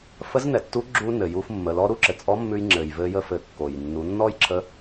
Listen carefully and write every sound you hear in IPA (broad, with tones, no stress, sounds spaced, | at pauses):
f ə˧˥ z n ɛ˩ tː u˧˥ ɡ͡ǁ u˧ n ɘ˩ j u˧ f mː ə˩˧ l ɔ˧ ɾ u˥ ǁ ɘ˩ t͡sʼ ɔ˧˥ mː ʉ˧ j ŋ͡ǁ ɘ˩ j v ɘ˧ j ə˧ f ɘ˩˧ kː o˩ j nː u˩˧ nː ɔ˥ j ǁʰ ə˧˥